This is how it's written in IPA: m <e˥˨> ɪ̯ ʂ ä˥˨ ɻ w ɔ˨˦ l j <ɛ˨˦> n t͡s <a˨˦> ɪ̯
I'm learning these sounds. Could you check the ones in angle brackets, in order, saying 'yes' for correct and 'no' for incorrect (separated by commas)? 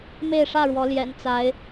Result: yes, no, yes